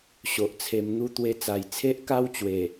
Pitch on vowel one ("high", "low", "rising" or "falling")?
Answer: low